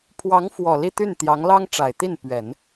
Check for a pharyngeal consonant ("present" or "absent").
absent